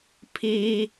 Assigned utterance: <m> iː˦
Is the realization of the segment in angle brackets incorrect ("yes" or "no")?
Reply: yes